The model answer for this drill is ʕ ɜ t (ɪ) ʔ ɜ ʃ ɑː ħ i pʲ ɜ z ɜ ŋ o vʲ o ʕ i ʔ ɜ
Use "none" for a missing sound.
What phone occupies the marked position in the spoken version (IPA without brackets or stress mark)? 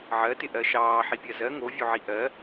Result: ɪ